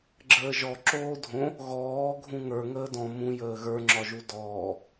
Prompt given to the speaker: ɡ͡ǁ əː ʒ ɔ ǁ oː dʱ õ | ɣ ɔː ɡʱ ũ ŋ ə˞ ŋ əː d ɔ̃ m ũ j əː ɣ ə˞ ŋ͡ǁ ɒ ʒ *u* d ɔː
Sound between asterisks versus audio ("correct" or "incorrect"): correct